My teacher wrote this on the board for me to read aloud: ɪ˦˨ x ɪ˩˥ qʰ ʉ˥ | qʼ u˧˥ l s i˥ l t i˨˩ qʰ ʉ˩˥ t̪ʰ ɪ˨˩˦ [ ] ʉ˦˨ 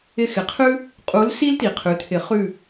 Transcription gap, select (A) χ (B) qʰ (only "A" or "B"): A